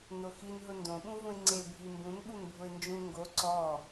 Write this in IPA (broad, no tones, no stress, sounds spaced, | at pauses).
n o x i n ɦ ʊ n d õ ɓ ũ v ũ ɪ̯ ŋ͡ǀ e bʱ i m b ũ n ɓ u n bʱ ʊ ɪ̯ n d͡ʒ ũ ŋ ɡ o ǀ ɔ